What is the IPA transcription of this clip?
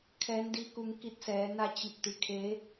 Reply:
kʰ ɛː˧˥ n d i˧˥ k u˧ ŋ k i˧˥ t̚ s ɛː˩˧ n a˧ t͡ɕ i˧˩ p̚ t̪ i˩ kʰ e˧˥

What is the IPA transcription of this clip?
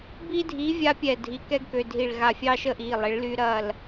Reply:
b i˦ dʱ iː˨˥ vʲ a˦ pʲ ɛ˧˩ dʱ i˩˧˩ k ɛ˦ ɡ k ø˩˧˩ dʱ i˧˩ ɭ ɣ a˧˩ fʲ ɑ˦ ʃ ə˦ ʔ iː˩˧˩ lˠ e˨˥ ɭ l y˦ ɾ ɐː˥˨ l

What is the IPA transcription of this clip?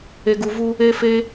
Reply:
e˧ ɡ u˧ v u˧ | e˦ f e˦

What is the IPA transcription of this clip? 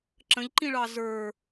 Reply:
ǁ ə̃ ʎ ǃ ĩ ɭ ɑ z ə˞

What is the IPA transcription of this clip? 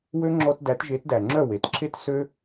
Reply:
w ø˦ ŋ͡ǁ ɔ˧ t d æ˨˦ t ʒ e˨˦ t d æ˨ ŋ͡ǁ œ˦˨ w e˨ t ǁʰ e˦ t s ø˦

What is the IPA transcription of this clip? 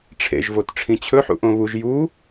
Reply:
ʈ͡ʂʰ ḛ ʒ v o t ʈ͡ʂʰ ĩ t͡ɕʰ ɵ ħ ṵ ʔ õ β u ʒ j u

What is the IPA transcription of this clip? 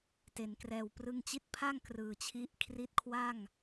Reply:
t e˩˦ n k r ɛː˨˩ w p r ɯ˧ ŋ t͡ɕ i˦˥ t̚ pʰ a˥˩ ŋ k r ɯː˨˩ t͡ɕʰ i˦˥ ʔ kʰ r i˦˥ t̚ kʰ w a˥˩ ŋ

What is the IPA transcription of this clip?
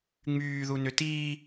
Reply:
ŋ͡m yː ð u n ʏ t iː

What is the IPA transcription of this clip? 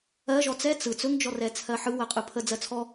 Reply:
ɜ ʒ ɔ t͡s ɛ t͡s ɯ t͡s ɵ ŋ d͡ʒ ɔ r ɛ t͡sʰ ɜ ħ ɯ w ɜ qʼ ɯ pʰ ə d͡z ɜ t͡sʰ ɔ

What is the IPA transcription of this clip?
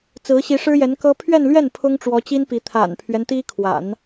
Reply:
t͡s ɹ̩˧˥ ɕ i˧˥ ʂ ɻ̩˥ j ɛ˧˥ n k ɤ˥ pʰ ɥ ɛ˥˧ n l ɥ ɛ˥˩ n pʰ ʊ˥ ŋ ʈ͡ʂ w ɔ˧˥ t͡ɕ i˥ n p i˧˥ t̪ʰ a̰˨˩ n pʰ ɥ ɛ˦ n t̪ i˥ kʰ w a̰˨˩˦ n

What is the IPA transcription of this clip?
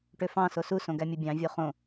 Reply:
ʈ ø f ɑ̃ s o s u s õ ɡ æ mʲ u bʲ ɑ̃ vʲ o χ õ

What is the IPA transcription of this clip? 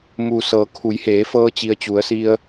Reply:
m uː˩ s ɤː˩˧ kʰ u˩˧ j h eː˩˧ f ɤː˧ t͡ɕ i˩ ə̯ t͡ɕ u˩˧ ə̯ s i˧ ə̯

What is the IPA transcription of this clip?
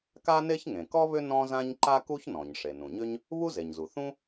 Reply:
k a˥ n e˥ ç ŋ ẽ˩ k ɔ˥ β ʏ˥ n ɔ̃˥ z ã˥ ɲ ǃ a˥ k u˥ ç n ɔ̃˩ ɲ ʂ e˩ n ũ˩ ɲ ʏ˥ ɲ | β u˥ z e˩ ɲ z u˩ θ ũ˥

